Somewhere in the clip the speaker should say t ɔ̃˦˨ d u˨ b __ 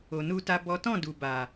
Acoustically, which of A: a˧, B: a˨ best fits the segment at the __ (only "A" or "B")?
B